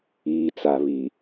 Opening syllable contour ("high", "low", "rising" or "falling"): low